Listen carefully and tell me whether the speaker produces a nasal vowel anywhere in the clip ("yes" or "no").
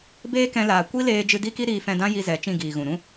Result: yes